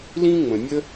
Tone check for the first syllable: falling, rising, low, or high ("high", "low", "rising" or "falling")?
high